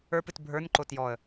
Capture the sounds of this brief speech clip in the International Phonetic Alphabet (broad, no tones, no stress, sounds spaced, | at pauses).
ə˞ p ɨ t bʱ ə˞ n ǃ o t j ɔ ə̯